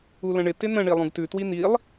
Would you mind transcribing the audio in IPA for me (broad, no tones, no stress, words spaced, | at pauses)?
ulə̃ɳɪ tɪnə̃ ɳilˠũɡtʉ twin̪ilˠ